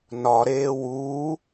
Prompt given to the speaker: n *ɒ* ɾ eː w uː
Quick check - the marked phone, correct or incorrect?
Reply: correct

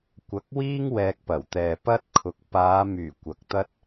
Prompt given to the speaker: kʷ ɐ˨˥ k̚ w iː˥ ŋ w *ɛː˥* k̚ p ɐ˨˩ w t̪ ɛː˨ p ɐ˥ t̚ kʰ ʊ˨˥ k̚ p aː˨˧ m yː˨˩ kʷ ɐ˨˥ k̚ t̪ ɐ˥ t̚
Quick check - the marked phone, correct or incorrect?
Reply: incorrect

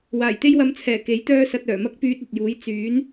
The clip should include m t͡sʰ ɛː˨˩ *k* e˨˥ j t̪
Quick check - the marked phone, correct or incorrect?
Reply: correct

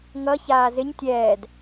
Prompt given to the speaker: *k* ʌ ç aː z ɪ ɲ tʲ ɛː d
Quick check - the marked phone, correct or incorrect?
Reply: incorrect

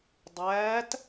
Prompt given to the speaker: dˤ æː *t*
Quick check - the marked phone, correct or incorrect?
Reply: correct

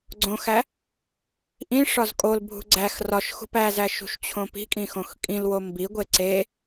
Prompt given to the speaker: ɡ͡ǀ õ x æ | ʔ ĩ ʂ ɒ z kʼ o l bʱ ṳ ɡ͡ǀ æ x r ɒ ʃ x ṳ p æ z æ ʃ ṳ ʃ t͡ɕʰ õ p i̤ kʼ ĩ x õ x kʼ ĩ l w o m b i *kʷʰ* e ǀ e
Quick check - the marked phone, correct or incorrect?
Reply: incorrect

